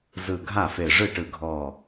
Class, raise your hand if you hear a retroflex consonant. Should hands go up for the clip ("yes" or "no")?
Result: yes